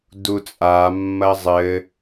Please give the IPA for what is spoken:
dut͡sʼa mːɐzˤɘ

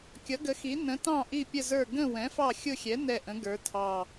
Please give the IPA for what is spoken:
kʲʌ˨˥ɡə˨˥xi˨˥ nə̃˨˥tɑ̃˦˨ ʔi˦˨pʲə˦˨zə˞˦˨ ɡə̃˦˨ wɛ̃˨˥fɑ˦˨xʲʊ˦˨xʲɛ˨˥ nɛ˦˨ʔə̃˨˥ɡə˞˨˥tʰɑ˦˨

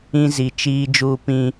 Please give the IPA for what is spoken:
ĩ˦zi˨ t͡ʃiː˦ d͡ʒuː˦pĩ˦

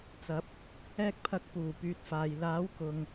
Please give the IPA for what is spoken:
t͡sɐ˨˥p̚ | ɛː˧k̚pʰɐ˨˥k̚ puː˨˩pyː˨t̚ faː˨j laː˨˥wkʊ˨ŋ

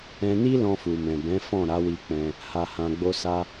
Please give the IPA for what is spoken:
ɛ̃˧ni˦ lɔ̃˧fu˨mɛ̃˨bɛ̃˨˦ fɔ̃˦˨ɾa˨˦wi˧ k͡pɛ̃˧ | ha˨hã˨ɡ͡bo˧sa˧

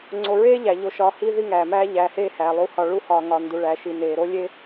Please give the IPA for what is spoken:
ŋ͡ǀo˨ɹeː˥ʎæ˩ ʎo˨ʃɒː˨hi˦ ði˦ŋæː˩mæː˦ ʎæː˨heː˦hæː˩ lˠu˨hɒ˨ ɭu˦hɒː˨ ŋɒ˨ndu˨ɭæ˨ʃi˨ neː˩ ɾo˦ lʲe˥

